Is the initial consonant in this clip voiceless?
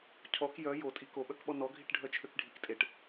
yes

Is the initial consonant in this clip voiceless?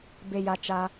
no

